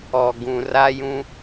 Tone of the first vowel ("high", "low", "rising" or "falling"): low